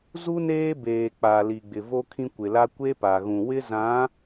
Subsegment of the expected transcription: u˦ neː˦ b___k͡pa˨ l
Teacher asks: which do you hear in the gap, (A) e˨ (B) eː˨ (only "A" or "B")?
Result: B